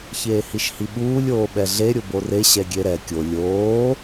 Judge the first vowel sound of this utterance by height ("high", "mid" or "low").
mid